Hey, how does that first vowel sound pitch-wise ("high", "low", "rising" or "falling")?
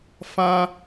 high